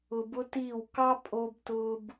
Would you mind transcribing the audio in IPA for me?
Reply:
ʊ˧ b ʊ˦ t iː˦˨ w k ɑ˦ pʼ o˧ b t ʊː˦ b

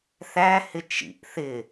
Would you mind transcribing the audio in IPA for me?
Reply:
θ æ h ɪ t͡ʃ ḭ ʔ θ ɪ

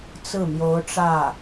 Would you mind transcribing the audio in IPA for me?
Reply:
t͡s ɹ̩˥˩ m j o˧˥ ʊ̯ ʈ͡ʂ ä˥˩

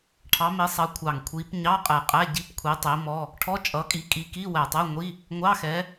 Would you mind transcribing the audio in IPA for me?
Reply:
ʈʰ ɑ˨˦ m i˨˦ sˤ ʌ˨˦ kʷʰ ɑ˨˩ ŋ kʷʰ i˨˦ p ɲ ɑ˧˥˧ qʼ ɛ˨˩ qʼ æ˧˥˧ ɟ i˧˥˧ p kʷʰ i˨˦ tˤ i˨˦ m ɔ˧˥˧ | ʈʰ ɔ˧˥˧ t͡ʃʼ ʌ˨˦ kʼ i˨˦ kʼ i˨˦ k i˧˥˧ w æ˨˩ tˤ ɛ˧˥˧ ŋʷ i˧˥˧ | ŋʷ ɑ˧˥˧ x ɛ˨˦

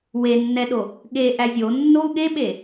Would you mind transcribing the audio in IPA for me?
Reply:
w e nː ɛ ɗ o | ɠ e ʔ æ zʲ o nː o u̯ ɠ e ɓ e

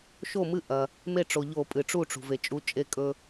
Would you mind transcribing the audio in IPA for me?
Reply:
ʃ o˥˩ m ɨ˦ ʔ ɐ˩ | m e˥˩ ʈ͡ʂ o˩ ʎ o˧˩˧ pʼ ɨ˩ ʈ͡ʂ u˥˩ ʈ͡ʂ ṳ˩ v e˩ t͡ʃʼ u˨˥ t͡ʃʼ e˦ kʼ ɵ˦

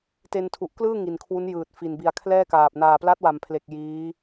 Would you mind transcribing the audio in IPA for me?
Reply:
t e˧ n tʰ u˨˩ ʔ k l ɯː˥˩ ŋ i˨˩ n kʰ w u˦˥ n j ɯː˨˩ t̚ f i˨˩ n b i˨˩ a̯ kʰ l ɛː˥˩ k aː˨˩ p̚ n aː˨˩ p l a˦˥ t̚ w a˩˦ m pʰ l e˨˩ k̚ j iː˦˥

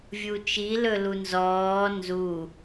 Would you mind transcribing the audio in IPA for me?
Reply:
vʲ u t͡ʃ i l ɵ l u n z ɔː n z u

